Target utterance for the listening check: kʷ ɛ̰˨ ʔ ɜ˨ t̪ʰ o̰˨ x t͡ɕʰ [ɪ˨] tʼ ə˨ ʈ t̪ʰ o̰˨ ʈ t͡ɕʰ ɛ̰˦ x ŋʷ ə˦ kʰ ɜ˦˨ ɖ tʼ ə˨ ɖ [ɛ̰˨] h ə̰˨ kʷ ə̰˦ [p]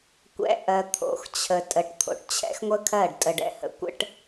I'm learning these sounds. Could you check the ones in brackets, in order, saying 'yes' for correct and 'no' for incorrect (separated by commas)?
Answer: no, yes, no